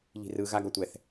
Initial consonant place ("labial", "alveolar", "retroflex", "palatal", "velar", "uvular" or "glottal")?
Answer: palatal